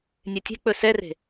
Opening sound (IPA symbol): nʲ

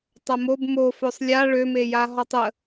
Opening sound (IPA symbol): tˤ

